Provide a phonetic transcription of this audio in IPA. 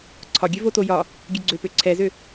ǀʰ ɒ ɡʲ ø v o t o j ɒ | ɡʲ ø ɡ͡ǀ ø p ø ǀʰ ɛ z ø

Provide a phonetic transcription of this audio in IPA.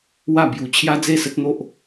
w a˥˧ b j u˧ t͡ɕʰ j a˦ d͡z e˥˧ s ə˦ t̚ n̪ o˦ ʔ

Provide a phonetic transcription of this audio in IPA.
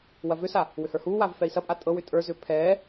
w ɐ v ʏ s a | w ʏ h ə˞ h uː w aː v f ɛ i̯ s ɐ pʼ a tʼ ɤ w ʏ tʼ ə˞ z ʏː pʰ ɛː

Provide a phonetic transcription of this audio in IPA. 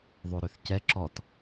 ðˤ o ɾ ø θ c ɛ ǁ ɔ t

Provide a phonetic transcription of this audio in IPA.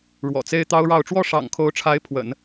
ɻ w ɔ̰˨˩ t͡s e˥ ɪ̯ t̪ ɑ˥ ʊ̯ ɻ ɑ˥˧ ʊ̯ ʈ͡ʂ w ɔ˥˩ ʂ ɑ̰˨˩ ŋ kʰ o˧˥ ʊ̯ ʈ͡ʂʰ a˧˥ ɪ̯ pʰ w ə̰˨˩˦ n

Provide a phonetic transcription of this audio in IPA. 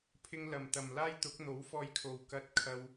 pʰ ɪ˧ ŋ l ɐ˨˩ m t̪ ɐ˨˩ m l aː˥ j t̪ ʊ˨˥ k̚ n̪ o˨˥ w f ɔː˧ j kʰ o˨ w k ɐ˧ t̚ kʰ ɐ˧ w

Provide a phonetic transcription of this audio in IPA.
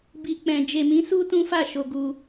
b i˨ k͡p ɛ̃˨ d͡ʒ e˨ m ĩ˨˦ s u˦ t ũ˦ f a˦˨ ʃ o˧ ɡ u˧

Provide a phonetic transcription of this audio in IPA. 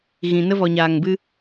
ɣ ĩ˨ n ə˧ v ɔ˨ ɲ aː˨ ŋ b ɨ˧

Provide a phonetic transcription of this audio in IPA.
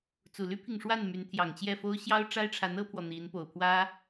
t͡s u˨˩ l y˥ pʰ i˨ ŋ ʂ w a˥˩ n m y˧˥ n t̪ʰ j ɑ˨˩ ŋ t͡ɕ j ɛ˥˩ f o˥ ʊ̯ ɕ j ɑ˥ ʊ̯ ʈ͡ʂ a˥ ɪ̯ ʈ͡ʂʰ a˧˥ n ɤ˥ pʰ w ɔ˨ n̪ i˧˥ n p o˨˩ ʊ̯ pʰ w ä˥

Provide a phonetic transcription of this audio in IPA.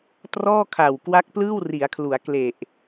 t r ɔː˥˩ kʰ a˨˩ w k w a˦˥ k̚ p l ɯː˥˩ w r i˩˦ a̯ kʰ l u˩˦ a̯ k l e˨˩ ʔ

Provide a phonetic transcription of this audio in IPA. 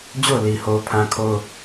d͡ʑ o˦˨ ʊ̯ l i˨ h o˦ ʊ̯ pʰ ã˦ kʰ o˦ ʊ̯

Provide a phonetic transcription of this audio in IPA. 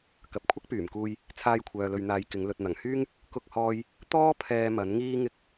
k ɐ˨ p̚ kʷʰ ɐ˥ k̚ p yː˨˩ m k uː˧ j | t͡sʰ aː˧ j kʷʰ œː˨ l ɵ˨ ɥ n̪ aː˨ j k ɪ˨˧ ŋ l ɵ˨ t̚ n̪ ɐ˨˩ ŋ h yː˥ ŋ | k ʊ˥ k̚ h ɔː˥ j | t̪ ɔː˥ pʰ ɛː˧ m ɐ˨˥ n ŋ iː˥ ŋ ɪ˥ k̚

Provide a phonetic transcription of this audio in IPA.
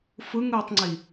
f ɯ ŋ ɯː tˤ ŋ͡ǀ i

